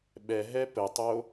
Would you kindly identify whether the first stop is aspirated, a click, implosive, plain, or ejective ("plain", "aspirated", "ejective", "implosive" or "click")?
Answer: implosive